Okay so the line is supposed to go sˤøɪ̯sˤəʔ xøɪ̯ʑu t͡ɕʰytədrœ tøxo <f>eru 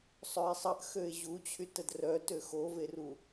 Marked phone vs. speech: incorrect: v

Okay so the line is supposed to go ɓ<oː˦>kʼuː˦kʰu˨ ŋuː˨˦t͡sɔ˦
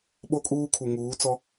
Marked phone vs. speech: incorrect: o˦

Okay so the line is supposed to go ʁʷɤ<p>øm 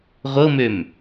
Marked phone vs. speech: incorrect: m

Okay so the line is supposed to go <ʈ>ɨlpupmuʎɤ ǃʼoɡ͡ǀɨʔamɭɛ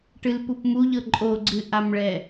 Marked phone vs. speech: correct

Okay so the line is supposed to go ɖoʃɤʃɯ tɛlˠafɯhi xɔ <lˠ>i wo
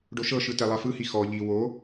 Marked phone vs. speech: incorrect: ʎ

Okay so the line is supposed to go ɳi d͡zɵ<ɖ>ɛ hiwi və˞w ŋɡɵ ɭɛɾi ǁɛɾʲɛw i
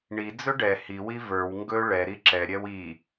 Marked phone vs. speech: correct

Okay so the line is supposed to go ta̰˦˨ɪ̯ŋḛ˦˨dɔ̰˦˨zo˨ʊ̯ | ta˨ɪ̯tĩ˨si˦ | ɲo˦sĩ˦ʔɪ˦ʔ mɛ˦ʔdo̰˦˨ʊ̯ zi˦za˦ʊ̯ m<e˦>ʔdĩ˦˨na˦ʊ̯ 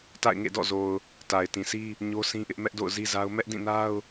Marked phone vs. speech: incorrect: ɛ˦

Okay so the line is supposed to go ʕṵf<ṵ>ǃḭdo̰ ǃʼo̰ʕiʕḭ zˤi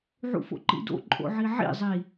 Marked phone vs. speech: incorrect: o̰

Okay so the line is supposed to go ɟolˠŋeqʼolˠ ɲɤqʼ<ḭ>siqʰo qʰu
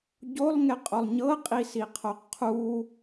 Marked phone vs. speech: incorrect: i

